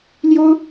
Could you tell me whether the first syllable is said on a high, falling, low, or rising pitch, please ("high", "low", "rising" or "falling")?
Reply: high